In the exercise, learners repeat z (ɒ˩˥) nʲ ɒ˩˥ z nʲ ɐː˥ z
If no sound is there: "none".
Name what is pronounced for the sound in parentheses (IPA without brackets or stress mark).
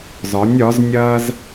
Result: ɒ˩˥